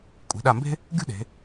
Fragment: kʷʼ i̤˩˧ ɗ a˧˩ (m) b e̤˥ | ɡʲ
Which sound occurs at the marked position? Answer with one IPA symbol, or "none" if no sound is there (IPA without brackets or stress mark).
m